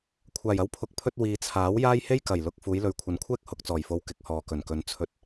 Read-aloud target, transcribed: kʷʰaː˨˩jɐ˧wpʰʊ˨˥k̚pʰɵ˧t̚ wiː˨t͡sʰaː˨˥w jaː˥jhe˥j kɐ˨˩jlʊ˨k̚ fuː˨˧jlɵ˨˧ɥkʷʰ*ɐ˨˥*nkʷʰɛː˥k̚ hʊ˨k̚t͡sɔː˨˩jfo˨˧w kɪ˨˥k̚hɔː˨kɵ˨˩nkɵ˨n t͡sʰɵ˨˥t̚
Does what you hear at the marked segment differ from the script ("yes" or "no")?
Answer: no